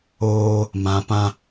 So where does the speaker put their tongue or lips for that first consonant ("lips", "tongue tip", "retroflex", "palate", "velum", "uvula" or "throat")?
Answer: lips